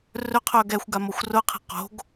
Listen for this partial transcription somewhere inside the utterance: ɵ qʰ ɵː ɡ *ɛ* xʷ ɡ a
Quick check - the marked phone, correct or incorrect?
correct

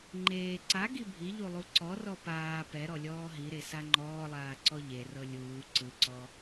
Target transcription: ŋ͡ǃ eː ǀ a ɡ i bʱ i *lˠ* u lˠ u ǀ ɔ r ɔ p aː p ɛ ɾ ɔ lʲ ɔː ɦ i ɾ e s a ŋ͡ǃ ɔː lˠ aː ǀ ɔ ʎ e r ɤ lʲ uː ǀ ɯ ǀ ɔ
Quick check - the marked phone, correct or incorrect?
incorrect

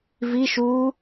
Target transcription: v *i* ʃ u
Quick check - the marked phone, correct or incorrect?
correct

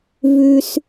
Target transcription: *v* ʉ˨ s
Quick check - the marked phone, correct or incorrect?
correct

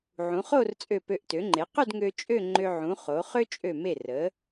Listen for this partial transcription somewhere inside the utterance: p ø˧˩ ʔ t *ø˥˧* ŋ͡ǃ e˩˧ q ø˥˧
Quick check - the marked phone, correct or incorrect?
incorrect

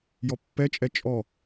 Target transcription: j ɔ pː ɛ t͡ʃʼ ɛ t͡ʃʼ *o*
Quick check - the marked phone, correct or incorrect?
incorrect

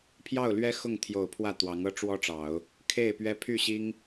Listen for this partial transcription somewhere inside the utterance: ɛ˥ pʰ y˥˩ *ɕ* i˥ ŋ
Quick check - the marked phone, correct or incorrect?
correct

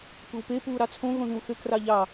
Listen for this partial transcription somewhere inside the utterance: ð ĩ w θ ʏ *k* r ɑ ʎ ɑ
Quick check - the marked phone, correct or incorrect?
correct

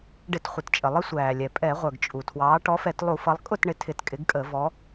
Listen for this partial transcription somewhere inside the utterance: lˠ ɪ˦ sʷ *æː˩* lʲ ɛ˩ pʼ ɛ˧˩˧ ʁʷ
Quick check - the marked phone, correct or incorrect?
correct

